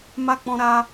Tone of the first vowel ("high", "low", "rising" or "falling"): high